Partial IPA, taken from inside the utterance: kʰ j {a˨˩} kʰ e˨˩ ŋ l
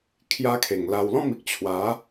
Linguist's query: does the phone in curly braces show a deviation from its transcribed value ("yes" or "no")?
yes